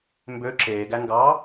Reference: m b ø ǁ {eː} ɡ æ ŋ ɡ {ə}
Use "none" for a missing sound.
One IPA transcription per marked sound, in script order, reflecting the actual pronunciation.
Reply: eː, ɑ

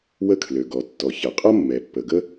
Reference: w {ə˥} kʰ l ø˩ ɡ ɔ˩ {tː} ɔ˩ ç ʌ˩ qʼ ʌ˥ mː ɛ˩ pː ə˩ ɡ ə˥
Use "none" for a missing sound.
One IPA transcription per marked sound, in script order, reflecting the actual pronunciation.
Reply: ə˥, tː

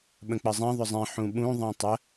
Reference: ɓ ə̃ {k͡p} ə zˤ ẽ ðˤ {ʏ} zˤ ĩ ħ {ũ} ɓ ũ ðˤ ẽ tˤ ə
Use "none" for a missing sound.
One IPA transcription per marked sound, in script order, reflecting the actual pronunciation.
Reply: k͡p, ʏ, ũ

